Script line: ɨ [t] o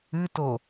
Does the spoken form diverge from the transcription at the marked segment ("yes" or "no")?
no